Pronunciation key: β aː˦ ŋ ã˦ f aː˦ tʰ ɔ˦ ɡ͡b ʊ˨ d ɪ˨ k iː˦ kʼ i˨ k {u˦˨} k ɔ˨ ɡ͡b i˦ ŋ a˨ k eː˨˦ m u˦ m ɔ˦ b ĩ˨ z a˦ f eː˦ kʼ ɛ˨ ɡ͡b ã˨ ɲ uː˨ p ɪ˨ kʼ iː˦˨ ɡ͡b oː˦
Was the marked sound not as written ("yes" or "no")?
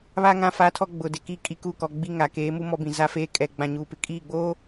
no